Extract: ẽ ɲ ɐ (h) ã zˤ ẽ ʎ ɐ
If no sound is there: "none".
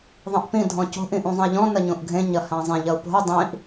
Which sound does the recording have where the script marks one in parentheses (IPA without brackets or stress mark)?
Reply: h